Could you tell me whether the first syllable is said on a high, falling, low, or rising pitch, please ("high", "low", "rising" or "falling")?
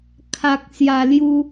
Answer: low